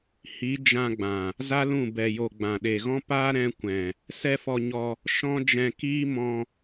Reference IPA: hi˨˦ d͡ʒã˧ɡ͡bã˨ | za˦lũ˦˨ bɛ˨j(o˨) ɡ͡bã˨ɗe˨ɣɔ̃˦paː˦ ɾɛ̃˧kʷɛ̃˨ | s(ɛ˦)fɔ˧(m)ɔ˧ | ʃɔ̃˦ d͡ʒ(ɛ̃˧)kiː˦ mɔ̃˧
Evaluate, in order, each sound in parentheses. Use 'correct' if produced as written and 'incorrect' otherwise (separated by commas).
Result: correct, correct, incorrect, correct